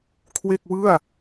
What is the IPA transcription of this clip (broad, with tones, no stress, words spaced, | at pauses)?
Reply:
kʰwe˥˩k̚wɯ˥˩a̯